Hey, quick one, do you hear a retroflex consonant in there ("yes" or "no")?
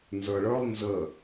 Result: yes